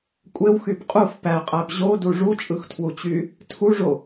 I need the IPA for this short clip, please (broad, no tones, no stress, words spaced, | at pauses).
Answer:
kʷʼewxyb qʼuf pæqʼæb ʑodu ʐut͡ʃʼɯxtʰwut͡ɕy | tʰuʐo